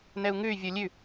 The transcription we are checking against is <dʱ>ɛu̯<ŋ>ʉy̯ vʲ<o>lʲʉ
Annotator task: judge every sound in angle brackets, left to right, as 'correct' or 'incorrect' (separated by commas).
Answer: incorrect, correct, correct